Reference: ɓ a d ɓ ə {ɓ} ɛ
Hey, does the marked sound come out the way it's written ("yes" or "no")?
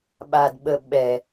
yes